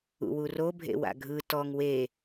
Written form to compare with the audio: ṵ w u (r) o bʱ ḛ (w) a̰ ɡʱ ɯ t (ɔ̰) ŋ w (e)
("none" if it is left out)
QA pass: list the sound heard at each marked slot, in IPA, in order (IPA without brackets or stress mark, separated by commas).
r, w, ɔ, e